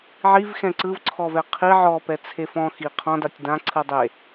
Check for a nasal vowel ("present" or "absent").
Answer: present